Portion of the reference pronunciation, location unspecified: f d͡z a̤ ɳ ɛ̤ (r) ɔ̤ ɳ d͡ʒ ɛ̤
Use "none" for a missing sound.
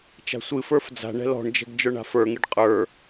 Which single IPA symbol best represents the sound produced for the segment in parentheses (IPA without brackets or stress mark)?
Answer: l